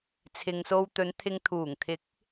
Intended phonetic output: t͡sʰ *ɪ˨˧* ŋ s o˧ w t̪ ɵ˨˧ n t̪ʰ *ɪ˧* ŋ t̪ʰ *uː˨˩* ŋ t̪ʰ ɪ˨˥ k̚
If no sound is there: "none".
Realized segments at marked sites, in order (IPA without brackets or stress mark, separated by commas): ɪ˨, ɪ˧, uː˨˩